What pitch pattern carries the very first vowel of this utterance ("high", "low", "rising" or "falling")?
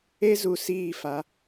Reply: high